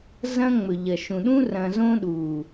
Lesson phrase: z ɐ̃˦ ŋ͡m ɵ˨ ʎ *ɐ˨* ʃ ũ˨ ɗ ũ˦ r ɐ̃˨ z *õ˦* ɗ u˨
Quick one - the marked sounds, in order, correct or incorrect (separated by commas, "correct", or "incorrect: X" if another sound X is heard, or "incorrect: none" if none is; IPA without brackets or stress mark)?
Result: correct, correct